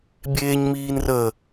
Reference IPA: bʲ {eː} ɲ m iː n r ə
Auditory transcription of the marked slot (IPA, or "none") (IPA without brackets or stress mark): eː